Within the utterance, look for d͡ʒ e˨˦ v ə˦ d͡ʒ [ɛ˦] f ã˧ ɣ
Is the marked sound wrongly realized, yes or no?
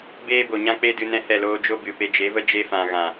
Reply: yes